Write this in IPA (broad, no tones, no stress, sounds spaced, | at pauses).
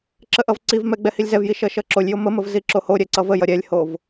ǁ ə ʔ ʌ v ǀ i v m ɛ ɡ͡b ɛ h i lʲ z ɛ v j i ʃ ʌ ʃ ʌ ǁ o lʲ j o m ə m ə v z i ǁ o h o ɾʲ ɛ ǀ ʌ v ə j ʌ ɾʲ ɛ lʲ h o v